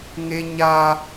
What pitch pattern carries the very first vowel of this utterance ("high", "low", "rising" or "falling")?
high